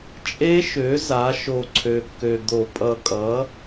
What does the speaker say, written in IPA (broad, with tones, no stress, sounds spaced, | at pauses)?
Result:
t͡ʃʼ e˦˥ ʃ ø˩˥ z a˩˥ ʃ o˨˩ ǀʰ ø˨˩ kː ø˨˩ d̪ o˧˩˧ pʼ ʌ˨˩ kʼ ʌ˩˥